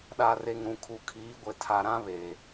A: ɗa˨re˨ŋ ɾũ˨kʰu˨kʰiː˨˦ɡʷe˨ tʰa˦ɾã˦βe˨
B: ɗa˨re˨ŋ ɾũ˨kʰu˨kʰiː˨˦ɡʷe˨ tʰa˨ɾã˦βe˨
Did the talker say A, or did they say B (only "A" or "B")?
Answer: B